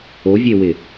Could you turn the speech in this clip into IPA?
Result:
o vʲ e w ɪ

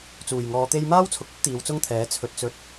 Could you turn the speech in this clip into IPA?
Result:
t͡s uː˨˩ j ŋ ɔː˨˧ t̪ e˧ j m aː˥ w t͡sʰ ʊ˨ k̚ ɵ˥ t̚ t̪ iː˨˧ w t͡s ʊ˥ ŋ t̪ʰ ɛː˨˥ t͡sʰ ɵ˧ t̚ t͡s ɵ˨˥ t̚

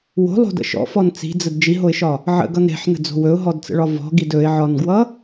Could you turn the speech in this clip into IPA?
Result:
w o̤ lˠ o̤ d ə̰ ʃ ɔ̰ f ɔ n t͡s i̤ d͡z ə d d͡ʒ i ɦ o ɪ̯ ʃ ɒ | ʕ ə̰ ɡ ʌ n ɾ e̤ ħ n ə̤ d͡z o̤ w ɵ ʊ̯ ɦ ɔ d t͡s ə̰ ɭ ɒ v ɔ̤ ɡ i d ɵ ɪ̯ ʕ ɒ n ɡ w ʌ

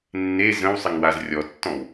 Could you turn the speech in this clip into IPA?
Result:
nː e z ə̃ w sˤ ɪ ŋ w a z rʲ ɔ tː ɔ̃ w

